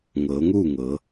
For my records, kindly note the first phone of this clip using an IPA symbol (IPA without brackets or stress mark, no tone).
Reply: ŋ